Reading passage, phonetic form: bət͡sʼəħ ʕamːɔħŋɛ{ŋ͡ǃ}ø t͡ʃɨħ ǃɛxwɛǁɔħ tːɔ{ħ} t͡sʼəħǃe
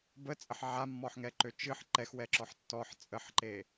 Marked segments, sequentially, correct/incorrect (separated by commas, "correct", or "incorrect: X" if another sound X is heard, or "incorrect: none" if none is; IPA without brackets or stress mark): incorrect: ǃ, correct